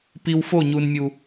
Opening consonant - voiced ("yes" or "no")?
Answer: no